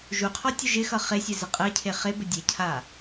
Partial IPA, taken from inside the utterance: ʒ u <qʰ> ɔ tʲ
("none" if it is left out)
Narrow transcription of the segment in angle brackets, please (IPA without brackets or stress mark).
qʰ